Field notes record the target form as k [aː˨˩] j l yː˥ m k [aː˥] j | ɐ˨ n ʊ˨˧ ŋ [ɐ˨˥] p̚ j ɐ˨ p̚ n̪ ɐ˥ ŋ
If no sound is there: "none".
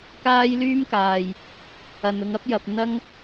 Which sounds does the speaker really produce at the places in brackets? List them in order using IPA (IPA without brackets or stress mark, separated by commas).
aː˥, aː˨, ɐ˨˥